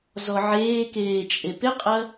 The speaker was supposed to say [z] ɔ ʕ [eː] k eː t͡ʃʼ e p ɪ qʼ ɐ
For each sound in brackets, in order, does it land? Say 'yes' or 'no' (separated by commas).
yes, yes